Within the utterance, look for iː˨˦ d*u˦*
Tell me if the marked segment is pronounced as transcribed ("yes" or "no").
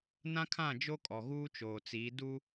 yes